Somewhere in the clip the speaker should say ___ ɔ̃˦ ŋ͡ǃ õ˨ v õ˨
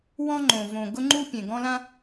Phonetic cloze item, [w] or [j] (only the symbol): w